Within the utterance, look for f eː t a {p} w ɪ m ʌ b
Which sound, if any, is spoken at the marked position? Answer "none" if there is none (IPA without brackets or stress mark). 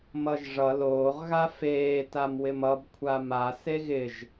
m